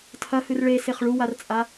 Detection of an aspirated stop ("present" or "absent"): present